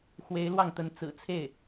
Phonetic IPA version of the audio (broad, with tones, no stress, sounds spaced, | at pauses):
x w e˧˥ ɪ̯ l w ɑ˥˩ ŋ t̪ ə˧˥ n t͡s ɹ̩˨˩ t͡sʰ e˥˩ ɪ̯